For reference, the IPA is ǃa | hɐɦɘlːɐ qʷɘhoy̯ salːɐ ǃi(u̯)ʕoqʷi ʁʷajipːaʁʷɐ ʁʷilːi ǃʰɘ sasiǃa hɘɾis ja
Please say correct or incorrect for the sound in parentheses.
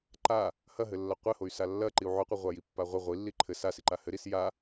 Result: correct